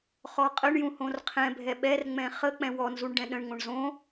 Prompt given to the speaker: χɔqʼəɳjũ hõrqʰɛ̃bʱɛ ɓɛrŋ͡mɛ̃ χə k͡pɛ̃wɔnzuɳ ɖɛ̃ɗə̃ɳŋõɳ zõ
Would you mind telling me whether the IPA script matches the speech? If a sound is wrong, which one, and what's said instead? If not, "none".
none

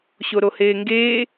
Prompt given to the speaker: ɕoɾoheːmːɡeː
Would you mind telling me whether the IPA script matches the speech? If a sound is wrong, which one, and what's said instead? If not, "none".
mː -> ŋ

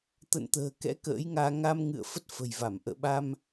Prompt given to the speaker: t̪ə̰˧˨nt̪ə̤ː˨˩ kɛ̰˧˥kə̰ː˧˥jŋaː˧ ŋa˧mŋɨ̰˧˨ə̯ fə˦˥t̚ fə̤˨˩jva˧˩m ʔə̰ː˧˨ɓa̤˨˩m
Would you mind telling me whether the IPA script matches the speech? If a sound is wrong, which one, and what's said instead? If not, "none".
a̤˨˩ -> a˧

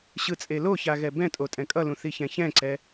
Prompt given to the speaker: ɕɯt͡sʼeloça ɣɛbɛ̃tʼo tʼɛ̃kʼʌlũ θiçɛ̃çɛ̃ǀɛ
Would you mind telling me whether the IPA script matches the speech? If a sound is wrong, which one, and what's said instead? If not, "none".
none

